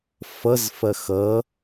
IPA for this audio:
f ʌ z f ɐ x ʌ

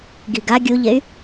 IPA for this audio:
ɡ i ɡ a ɡʲ u ʎ e y̯

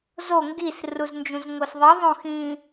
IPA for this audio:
z o ŋ ɡ i s r u z n d͡ʒ ũ z ŋ o s ðˤ i ðˤ õ x ĩ

